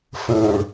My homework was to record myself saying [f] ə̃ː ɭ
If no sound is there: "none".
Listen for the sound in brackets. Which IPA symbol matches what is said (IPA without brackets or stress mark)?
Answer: f